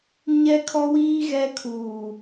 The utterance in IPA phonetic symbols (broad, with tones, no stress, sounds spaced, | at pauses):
ɲ ɛ˦ kʰ ɔ˦ w iː˦ ɣ ɛ˦ kʰ uː˨